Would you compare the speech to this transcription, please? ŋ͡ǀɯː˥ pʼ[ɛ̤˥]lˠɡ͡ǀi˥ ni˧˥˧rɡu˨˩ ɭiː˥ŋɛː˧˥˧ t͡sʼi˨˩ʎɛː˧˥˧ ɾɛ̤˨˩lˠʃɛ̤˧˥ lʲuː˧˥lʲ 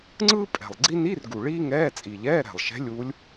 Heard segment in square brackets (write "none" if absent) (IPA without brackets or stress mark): ɛ̤˨˩